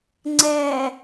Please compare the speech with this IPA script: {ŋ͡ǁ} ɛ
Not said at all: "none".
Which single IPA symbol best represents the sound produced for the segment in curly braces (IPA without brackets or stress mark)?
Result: ŋ͡ǀ